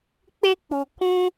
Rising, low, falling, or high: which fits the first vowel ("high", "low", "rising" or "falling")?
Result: high